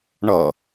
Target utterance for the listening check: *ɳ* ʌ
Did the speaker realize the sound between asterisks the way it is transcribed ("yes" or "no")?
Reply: yes